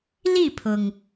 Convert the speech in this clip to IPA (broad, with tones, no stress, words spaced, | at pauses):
li˥˩pʰʊ˩ŋ